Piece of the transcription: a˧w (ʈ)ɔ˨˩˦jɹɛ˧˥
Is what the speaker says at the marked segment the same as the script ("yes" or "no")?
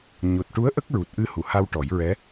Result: yes